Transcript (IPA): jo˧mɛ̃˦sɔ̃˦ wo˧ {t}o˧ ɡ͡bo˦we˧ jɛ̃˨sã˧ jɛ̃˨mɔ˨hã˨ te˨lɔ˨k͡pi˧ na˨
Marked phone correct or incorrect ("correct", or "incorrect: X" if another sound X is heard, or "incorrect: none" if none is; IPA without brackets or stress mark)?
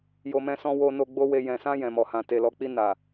incorrect: n